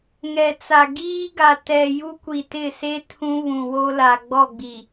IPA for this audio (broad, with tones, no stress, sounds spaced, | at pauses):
ŋ ɛ˨ t͡s a˨ ɡ iː˦ ɡ a˨ t ɛ˨ j u˦ kʷ i˨ t ɪ˦˨ s e˦ tʰ ũ˦ β ũ˨ w o˦ l a˨ ɡ͡b ɔ˦˨ ɡ͡b i˨